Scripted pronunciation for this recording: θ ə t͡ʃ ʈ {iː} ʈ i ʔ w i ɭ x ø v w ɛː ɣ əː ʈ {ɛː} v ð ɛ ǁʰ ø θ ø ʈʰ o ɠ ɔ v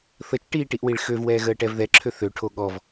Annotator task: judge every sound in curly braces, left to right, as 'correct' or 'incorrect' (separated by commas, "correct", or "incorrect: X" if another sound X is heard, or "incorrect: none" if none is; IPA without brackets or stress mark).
correct, incorrect: ɛ